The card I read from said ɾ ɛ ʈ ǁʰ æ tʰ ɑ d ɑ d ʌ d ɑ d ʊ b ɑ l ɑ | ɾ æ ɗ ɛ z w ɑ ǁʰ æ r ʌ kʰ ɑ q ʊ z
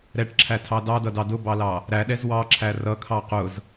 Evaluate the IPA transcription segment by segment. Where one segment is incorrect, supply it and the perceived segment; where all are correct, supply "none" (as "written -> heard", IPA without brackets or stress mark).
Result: none